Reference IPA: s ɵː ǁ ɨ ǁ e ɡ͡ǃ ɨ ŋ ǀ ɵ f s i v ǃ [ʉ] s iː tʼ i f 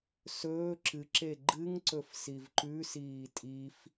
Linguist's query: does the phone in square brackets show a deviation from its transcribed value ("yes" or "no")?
no